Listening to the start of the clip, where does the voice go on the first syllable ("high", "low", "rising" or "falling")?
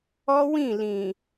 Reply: high